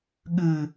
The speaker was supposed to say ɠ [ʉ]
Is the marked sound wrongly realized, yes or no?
no